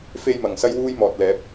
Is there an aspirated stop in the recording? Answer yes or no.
no